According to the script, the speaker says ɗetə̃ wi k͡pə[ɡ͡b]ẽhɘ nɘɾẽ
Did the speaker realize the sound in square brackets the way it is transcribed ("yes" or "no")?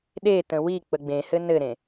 yes